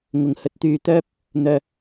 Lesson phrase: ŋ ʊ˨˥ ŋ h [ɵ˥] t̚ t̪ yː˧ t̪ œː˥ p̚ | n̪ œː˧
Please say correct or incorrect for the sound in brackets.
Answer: incorrect: ɵ˨˥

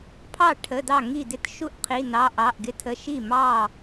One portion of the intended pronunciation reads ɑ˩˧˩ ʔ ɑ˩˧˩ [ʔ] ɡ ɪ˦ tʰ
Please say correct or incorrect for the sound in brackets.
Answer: correct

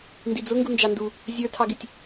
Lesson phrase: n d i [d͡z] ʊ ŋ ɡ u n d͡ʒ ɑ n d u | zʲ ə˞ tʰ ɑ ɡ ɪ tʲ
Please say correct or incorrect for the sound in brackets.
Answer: correct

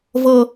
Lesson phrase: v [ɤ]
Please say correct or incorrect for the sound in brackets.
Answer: correct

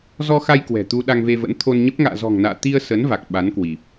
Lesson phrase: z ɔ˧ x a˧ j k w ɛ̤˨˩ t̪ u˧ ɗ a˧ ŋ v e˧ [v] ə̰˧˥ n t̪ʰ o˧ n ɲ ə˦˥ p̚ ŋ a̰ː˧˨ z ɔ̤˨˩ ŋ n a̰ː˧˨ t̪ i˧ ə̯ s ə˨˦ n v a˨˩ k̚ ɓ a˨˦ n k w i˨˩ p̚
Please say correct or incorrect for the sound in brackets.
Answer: correct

